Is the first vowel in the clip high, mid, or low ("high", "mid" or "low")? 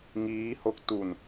high